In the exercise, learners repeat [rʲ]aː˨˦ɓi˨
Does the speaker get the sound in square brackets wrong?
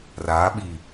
yes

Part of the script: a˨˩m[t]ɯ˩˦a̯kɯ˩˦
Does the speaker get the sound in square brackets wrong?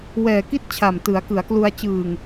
no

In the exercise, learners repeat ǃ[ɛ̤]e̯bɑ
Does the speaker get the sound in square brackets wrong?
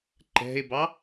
no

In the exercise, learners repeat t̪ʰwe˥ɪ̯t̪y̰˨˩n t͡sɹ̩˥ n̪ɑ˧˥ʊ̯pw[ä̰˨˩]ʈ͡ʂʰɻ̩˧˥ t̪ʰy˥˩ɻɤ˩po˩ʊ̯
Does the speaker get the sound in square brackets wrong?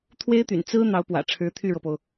no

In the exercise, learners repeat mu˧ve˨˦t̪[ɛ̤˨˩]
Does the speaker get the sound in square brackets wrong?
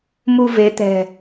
no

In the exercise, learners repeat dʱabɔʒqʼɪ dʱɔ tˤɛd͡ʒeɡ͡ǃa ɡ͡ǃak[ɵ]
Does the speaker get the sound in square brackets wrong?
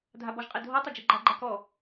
yes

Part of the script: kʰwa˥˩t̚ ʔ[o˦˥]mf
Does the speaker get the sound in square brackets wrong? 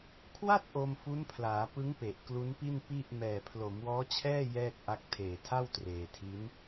yes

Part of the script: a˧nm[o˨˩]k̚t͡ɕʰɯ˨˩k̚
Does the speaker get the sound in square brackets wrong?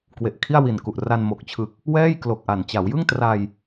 no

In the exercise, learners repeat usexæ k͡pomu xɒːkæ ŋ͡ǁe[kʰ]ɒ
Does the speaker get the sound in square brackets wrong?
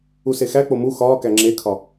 no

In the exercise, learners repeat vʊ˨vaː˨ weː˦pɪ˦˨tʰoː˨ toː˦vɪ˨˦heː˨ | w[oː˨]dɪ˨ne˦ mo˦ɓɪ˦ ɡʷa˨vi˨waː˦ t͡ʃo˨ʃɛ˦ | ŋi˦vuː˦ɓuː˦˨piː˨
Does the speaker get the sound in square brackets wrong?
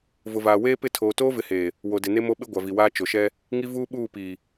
yes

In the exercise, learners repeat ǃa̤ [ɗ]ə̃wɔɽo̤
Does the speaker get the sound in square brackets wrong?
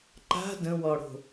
yes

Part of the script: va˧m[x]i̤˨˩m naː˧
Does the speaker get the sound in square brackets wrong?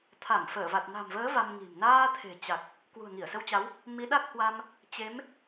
yes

